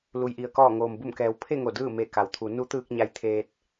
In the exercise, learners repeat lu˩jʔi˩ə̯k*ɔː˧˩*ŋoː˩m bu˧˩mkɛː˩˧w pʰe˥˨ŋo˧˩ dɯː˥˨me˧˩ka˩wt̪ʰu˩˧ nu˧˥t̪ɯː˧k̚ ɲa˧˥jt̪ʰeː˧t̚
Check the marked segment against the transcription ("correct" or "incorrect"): correct